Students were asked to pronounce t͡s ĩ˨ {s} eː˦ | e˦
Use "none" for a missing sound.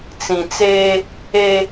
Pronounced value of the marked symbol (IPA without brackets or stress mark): t͡s